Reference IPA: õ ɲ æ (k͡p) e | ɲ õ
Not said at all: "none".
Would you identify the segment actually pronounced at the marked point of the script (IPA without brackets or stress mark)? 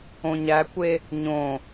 kʷ